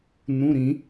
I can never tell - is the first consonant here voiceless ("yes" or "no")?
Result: no